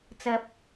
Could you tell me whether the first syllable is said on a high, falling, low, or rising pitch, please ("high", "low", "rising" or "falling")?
high